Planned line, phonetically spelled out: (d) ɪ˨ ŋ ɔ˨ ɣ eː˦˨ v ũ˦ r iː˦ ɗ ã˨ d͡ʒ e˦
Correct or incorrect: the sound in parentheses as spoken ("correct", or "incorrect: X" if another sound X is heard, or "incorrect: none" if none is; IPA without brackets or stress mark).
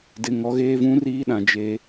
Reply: correct